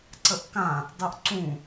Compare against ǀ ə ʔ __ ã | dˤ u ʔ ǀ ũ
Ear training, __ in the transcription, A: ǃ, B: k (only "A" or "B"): B